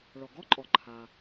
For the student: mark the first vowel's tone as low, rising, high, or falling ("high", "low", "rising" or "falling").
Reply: low